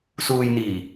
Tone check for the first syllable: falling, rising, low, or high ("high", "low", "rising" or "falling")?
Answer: low